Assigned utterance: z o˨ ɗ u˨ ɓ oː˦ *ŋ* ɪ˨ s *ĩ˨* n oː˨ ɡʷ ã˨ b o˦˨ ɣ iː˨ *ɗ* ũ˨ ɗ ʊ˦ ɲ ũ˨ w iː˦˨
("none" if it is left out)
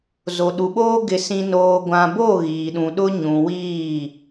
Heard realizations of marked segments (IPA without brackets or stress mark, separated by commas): ɡ, ĩ˨, ɗ